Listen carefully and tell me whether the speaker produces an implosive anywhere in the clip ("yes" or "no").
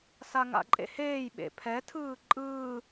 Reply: yes